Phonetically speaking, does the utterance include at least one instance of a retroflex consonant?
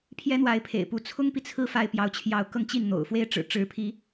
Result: yes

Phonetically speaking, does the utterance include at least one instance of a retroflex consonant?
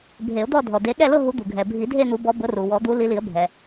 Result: no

